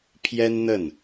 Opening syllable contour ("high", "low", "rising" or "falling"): high